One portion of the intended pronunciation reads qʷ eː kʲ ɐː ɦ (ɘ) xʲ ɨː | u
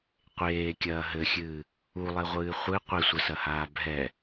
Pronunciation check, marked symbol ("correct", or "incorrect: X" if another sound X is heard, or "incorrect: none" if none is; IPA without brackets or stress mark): correct